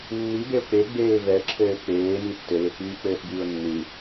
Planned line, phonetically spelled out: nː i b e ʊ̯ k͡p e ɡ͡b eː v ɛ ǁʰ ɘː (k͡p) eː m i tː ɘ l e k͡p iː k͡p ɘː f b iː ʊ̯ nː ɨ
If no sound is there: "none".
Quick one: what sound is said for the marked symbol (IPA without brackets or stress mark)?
k͡p